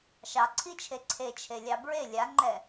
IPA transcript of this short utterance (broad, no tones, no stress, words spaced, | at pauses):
ʃɑǀʰit͡ʃʰe ǀʰet͡ʃʰelʲɑ bɹe lʲaŋ͡ǃɛ